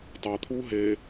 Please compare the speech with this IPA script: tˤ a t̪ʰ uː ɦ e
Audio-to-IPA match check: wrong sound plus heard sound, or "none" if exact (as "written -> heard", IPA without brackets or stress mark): none